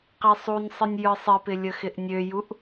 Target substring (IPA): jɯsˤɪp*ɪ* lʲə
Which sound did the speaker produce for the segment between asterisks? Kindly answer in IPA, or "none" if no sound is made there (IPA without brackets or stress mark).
ɪ